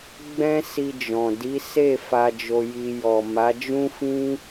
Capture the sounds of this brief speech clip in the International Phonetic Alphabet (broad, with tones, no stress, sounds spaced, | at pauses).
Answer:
ɡ͡b ɛ̃˦ s i˧ d͡ʒ ɔ̃˨ d i˨˦ s e˦˨ f a˧ d͡ʒ o˧ j i˧ j ɔ˨ m a˨˦ d͡ʒ ũ˦ f ĩ˦